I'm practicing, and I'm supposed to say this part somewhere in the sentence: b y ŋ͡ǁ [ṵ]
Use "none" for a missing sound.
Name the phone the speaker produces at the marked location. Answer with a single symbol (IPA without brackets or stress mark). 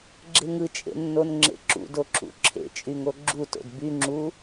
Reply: u